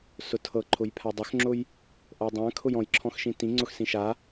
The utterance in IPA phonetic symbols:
s ʊ tʰ ɤ ǃʰ ʊ j pʰ a dˤ ʊ x ŋ͡ǁ ʊ j | ʔ ɤ dˤ ã kʰ ʊ j ɔ̃ j ǁʰ ɔ̃ x ʃ ĩ t ĩ ŋ͡ǀ ʊ x s ĩ ʃ a

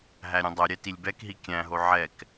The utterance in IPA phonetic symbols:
ɦ æ ɾʲ œ̃ dˤ œ ɾʲ ɛ t i lʲ b ɛ k ɦ i kʲ æ̃ ɦ o ʕ ɛ k

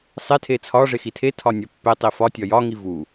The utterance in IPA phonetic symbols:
sˤ e tʰ e t͡sʰ ɒ ʐ e x i tʰ e tʰ ɒ nʲ ɒ pː e tˤ i f ɒ tʲ ɒ j ɒ ŋ i v u

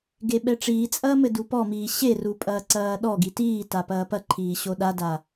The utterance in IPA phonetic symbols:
ɡ e ɓ ɛ ʈ͡ʂ iː t͡sʼ ɐː m ɘ d u p ɔ m iː ɕ e r u pʼ ɐː ǀ ɐː ɗ ɔ ɡ i t iː t a p ɐː p ɐ ǃʰ iː ɕ o ɗ a d a

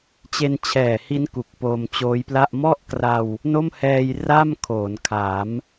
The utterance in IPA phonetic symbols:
t͡ɕ e˧ n t͡ɕʰ ɛː˨˩ h i˦˥ n k u˨˩ k̚ p oː˧ m t͡ɕ oː˦˥ j p l a˥˩ ʔ m ɔ˥˩ ʔ k r a˧ w | n o˥˩ m h ɛː˧ j r a˥˩ m kʰ oː˩˦ n kʰ a˩˦ m

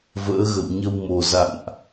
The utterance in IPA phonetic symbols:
v ə̰ː˧˥ ɣ ə̰˧˨ w ɲ ə˧ w m o˨˩ z a̰˧˨ n ʔ

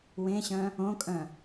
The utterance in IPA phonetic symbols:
w ẽ ɕ œ̃ | õ kʼ œ̃

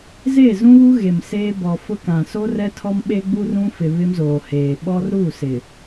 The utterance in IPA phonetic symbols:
z e˦˨ z ũ˦ β u˦ ɣ e˨ m s eː˦ b ɔ˨ f ʊ˦ k ã˨ s oː˦ r ɛ˦ tʰ ɔ˦ m ɓ e˦ ɡ͡b u˦ r ũ˦ f ɪ˨ β ɪ˦ m z oː˨ h eː˨ ɓ ɔ˦ r ɾ u˦˨ s ɪ˨

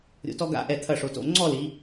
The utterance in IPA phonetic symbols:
ɾʲ o̰˧ t ɔ˥ ɡ a̰˥˧ ʔ ɛ˧˩ t̪ʰ ɐ˧˩ ʂ o˩˧ t o̰˧˩ ŋ͡ǀ ɔ˥˧ l i˩˧

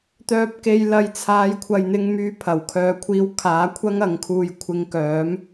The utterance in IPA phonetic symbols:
t̪ œː˧ p̚ k e˧ j l ɐ˧ j t͡sʰ aː˨˧ j kʷʰ ɐ˨ j n̪ ɪ˧ ŋ m yː˧ pʰ ɐ˨˩ w kʰ œː˨ kʷʰ iː˧ w kʰ aː˨˥ kʷʰ ɐ˥ ŋ ɐ˨˧ ŋ kʰ uː˧ j kʷʰ ɪ˧ ŋ k œː˨˥ m

